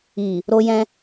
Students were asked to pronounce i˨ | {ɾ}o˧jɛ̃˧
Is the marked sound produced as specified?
yes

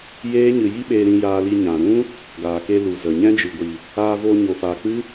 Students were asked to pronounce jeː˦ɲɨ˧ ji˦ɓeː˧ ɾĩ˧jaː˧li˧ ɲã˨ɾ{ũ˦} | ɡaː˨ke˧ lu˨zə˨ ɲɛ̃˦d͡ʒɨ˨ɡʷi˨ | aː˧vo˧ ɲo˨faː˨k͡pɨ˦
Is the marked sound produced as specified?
yes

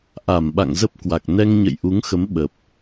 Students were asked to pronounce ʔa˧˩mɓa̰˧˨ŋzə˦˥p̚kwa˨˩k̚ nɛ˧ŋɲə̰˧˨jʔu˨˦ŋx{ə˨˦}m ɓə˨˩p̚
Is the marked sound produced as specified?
yes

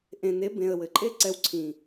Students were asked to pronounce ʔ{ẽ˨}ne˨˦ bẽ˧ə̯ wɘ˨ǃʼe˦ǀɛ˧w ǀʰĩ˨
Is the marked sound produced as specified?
yes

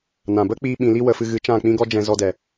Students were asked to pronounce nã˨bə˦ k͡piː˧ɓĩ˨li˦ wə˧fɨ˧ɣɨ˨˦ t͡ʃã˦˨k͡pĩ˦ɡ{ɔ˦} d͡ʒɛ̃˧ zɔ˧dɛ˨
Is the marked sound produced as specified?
yes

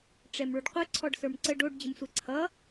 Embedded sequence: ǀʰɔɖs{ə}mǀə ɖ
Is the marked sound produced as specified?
no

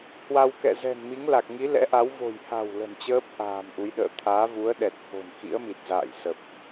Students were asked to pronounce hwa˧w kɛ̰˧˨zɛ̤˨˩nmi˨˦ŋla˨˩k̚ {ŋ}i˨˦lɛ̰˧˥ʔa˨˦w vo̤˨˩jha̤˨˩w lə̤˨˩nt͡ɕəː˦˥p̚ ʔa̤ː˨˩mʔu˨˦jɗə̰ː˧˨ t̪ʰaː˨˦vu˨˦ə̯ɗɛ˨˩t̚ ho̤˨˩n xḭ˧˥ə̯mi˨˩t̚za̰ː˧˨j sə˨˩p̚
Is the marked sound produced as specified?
yes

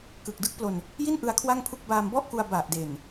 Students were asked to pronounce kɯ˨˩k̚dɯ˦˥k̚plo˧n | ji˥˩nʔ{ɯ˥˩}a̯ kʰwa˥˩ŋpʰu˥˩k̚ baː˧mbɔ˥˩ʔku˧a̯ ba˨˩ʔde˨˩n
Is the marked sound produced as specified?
no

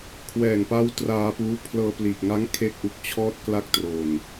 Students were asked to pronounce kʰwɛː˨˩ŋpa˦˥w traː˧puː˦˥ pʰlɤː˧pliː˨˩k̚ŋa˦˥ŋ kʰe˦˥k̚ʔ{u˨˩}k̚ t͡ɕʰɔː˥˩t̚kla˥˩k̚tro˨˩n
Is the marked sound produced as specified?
yes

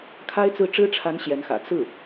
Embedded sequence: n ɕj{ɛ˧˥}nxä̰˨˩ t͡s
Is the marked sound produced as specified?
yes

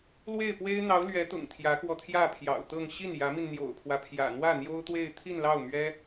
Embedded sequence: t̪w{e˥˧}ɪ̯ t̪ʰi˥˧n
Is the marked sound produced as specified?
yes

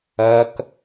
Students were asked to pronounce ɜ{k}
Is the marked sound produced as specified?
yes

